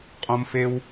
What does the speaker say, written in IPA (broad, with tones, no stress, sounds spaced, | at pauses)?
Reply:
qʼ õ˧ m f e˧ w